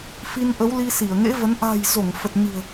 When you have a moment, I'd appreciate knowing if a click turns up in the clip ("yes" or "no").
no